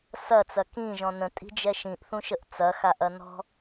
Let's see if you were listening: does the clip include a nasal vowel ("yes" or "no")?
yes